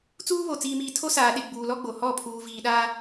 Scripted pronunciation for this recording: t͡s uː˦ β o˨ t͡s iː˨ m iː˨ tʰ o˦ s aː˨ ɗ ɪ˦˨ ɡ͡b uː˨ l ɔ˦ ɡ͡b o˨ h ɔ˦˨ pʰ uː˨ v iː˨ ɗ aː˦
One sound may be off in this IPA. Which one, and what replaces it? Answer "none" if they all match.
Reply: none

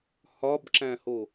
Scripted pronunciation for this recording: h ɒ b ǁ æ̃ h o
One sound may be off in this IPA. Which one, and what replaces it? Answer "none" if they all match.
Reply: none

